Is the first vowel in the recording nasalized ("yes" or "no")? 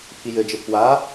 no